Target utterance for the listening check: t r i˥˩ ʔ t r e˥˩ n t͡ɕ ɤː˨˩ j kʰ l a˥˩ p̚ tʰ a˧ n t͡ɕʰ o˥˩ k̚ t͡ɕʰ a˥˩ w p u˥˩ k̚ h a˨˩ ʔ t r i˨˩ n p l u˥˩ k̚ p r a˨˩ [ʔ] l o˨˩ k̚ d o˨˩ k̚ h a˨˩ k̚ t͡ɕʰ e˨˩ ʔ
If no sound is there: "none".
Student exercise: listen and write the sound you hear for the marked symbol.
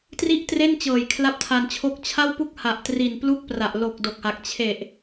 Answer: ʔ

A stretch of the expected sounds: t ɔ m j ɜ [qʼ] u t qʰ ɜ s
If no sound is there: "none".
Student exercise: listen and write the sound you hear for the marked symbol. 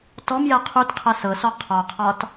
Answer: qʰ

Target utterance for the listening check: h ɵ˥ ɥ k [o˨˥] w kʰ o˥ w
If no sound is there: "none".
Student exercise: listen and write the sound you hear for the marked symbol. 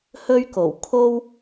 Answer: o˨˩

